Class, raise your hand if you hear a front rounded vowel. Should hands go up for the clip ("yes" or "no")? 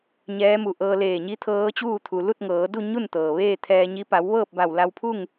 no